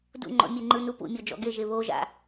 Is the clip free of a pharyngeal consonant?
yes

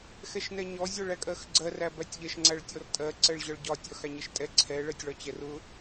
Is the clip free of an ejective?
no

